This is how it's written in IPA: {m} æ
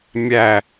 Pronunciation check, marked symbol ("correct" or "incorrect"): incorrect